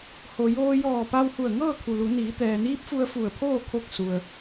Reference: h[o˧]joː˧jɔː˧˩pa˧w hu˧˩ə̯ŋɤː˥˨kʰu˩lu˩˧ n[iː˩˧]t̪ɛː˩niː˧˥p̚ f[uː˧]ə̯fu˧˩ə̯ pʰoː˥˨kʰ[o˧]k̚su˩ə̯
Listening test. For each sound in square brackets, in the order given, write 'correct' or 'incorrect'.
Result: incorrect: o˩, correct, incorrect: u˧, incorrect: o˧˥

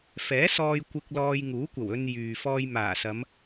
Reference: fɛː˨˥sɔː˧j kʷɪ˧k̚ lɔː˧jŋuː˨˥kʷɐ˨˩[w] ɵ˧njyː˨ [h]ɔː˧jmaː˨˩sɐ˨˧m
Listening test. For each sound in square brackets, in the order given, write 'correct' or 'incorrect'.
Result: correct, incorrect: f

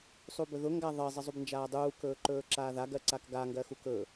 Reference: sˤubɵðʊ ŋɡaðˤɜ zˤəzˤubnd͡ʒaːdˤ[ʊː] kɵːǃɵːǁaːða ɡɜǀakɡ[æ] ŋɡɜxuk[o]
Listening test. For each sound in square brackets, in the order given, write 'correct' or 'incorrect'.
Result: incorrect: uː, incorrect: a, incorrect: ɵ

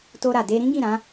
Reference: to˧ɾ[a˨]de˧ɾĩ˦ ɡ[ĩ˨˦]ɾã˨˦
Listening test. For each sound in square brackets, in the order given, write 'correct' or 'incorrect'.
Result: correct, incorrect: ĩ˦˨

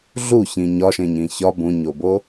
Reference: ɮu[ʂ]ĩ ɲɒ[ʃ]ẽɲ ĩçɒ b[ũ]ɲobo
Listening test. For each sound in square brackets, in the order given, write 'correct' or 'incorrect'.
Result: incorrect: ç, correct, correct

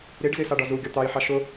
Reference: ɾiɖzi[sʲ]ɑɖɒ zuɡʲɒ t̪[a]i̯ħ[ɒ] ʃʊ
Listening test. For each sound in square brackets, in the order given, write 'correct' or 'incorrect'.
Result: incorrect: s, incorrect: ɑ, incorrect: ɑ

